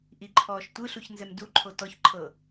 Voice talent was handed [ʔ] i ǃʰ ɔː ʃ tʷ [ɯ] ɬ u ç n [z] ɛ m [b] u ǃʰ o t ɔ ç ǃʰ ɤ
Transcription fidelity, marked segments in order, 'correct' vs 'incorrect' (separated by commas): correct, correct, correct, incorrect